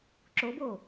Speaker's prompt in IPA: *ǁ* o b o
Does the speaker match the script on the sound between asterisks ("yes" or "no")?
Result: yes